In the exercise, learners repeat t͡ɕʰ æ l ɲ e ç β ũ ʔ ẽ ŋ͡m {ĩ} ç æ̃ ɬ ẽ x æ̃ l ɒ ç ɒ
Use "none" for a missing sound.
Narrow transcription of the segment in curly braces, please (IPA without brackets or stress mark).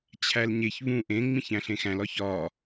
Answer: ĩ